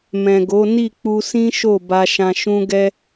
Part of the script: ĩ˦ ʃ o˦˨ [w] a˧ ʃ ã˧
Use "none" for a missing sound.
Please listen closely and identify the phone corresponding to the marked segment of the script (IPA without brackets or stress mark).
b